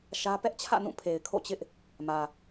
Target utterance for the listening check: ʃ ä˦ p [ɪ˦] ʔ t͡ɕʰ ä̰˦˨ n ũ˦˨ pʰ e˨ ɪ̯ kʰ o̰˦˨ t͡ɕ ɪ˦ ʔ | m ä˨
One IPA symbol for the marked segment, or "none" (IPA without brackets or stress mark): ɛ˦